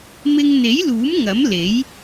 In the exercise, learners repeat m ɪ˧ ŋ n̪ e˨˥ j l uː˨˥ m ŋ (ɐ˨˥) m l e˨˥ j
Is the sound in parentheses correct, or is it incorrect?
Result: correct